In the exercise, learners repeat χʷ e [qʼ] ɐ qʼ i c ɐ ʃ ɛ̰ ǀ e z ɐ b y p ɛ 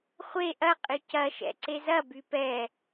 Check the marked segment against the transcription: incorrect: ʔ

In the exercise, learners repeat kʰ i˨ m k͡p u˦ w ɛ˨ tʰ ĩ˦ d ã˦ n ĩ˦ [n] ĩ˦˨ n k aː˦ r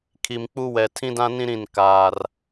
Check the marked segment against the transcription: incorrect: ɾ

